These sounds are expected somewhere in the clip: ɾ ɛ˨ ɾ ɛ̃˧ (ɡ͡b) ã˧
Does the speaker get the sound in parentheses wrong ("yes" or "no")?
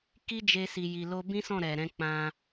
yes